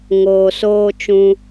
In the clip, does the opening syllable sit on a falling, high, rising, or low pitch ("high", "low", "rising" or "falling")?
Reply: low